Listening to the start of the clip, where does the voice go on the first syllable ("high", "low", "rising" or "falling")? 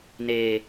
low